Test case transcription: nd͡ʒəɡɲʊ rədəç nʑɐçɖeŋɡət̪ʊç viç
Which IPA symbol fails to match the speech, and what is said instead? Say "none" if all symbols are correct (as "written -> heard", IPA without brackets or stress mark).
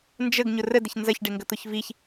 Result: ʑ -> z